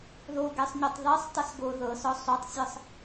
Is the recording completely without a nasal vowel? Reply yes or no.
yes